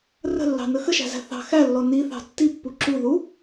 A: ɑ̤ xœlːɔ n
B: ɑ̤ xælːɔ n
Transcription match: B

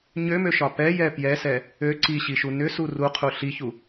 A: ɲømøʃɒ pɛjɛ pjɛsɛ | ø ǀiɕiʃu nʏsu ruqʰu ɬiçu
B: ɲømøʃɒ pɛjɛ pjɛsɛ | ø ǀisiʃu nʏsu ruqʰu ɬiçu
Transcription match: A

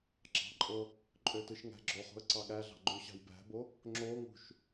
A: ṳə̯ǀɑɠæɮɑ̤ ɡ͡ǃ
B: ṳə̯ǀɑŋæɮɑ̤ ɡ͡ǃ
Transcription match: A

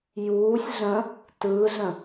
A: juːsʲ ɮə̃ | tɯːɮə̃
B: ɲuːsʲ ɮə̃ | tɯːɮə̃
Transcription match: A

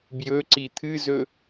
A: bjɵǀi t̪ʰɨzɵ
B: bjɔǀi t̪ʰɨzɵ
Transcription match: A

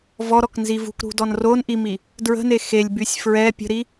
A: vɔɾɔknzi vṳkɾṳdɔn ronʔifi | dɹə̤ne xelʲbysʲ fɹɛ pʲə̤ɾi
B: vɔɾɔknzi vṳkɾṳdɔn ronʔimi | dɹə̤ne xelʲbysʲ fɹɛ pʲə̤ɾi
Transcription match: B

